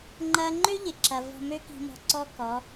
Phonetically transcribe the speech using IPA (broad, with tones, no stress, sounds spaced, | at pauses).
ŋ͡ǃ ɐ˦ ŋ͡ǃ ø˦ ʎ ɪ˨ ǁ ɐ˨ v ɔ̤˧ m ø˦ k i̤˧ m ɔ̤˧ ǀ ɔ˦ k ɔ˨˦